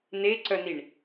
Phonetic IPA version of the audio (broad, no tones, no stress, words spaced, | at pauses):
neǀœniɳ